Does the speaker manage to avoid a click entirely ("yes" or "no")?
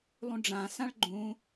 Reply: no